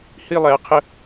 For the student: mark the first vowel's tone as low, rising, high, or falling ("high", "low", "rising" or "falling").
high